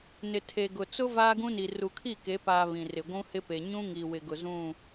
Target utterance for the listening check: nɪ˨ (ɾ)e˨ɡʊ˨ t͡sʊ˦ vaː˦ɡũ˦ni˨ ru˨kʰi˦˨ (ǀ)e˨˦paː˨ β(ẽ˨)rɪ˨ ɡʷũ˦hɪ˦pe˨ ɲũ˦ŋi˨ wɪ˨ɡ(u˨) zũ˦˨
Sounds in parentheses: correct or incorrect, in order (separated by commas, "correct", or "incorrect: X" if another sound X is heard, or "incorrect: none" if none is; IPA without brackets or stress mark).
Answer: incorrect: tʰ, incorrect: k, incorrect: ĩ˨, incorrect: ʊ˨